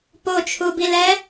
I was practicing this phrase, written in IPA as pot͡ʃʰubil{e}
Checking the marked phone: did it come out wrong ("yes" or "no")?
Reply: yes